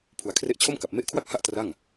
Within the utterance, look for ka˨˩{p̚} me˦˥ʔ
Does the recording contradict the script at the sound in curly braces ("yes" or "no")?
no